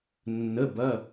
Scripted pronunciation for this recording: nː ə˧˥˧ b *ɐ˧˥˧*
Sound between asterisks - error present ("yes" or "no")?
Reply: no